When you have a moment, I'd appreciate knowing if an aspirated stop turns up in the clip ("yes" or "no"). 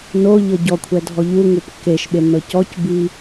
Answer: yes